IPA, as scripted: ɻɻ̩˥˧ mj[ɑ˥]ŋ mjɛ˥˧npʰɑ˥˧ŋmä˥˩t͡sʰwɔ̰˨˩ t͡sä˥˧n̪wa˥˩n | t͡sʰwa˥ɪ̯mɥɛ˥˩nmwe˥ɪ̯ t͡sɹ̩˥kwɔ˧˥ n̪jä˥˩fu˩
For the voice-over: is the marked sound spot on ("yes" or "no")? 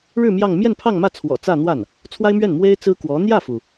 no